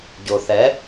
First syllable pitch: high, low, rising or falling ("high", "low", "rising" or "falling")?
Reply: low